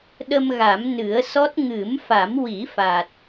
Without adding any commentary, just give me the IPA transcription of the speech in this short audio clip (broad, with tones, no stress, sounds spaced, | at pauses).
ɗ ə˧ m ɣ a˨˩˦ m n ɨ˨˩˦ ə̯ s ɔ˦˥ t̚ ŋ ɨ˨˩˦ m f a˨˩˦ m w i˨˩˦ f a˨˩ t̚